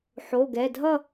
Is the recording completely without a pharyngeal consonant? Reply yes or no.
no